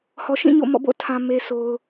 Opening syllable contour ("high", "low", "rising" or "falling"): low